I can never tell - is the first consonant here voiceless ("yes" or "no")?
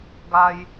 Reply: no